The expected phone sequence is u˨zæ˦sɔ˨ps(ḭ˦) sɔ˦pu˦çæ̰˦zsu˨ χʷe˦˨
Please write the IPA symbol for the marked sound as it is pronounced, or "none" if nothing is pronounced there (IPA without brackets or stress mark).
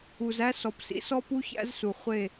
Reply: ḭ˦